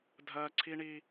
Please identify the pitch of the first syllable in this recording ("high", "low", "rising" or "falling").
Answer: high